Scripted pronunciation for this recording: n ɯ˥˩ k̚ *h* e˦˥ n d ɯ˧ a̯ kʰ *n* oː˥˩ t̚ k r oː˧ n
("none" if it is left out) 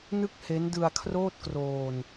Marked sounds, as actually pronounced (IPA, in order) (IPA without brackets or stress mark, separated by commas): h, r